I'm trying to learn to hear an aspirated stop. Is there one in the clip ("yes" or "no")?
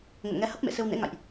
no